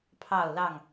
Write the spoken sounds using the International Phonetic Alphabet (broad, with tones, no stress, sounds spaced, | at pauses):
pʰ ɑ˥˨ ʊ̯ l ɑ˥˨ ŋ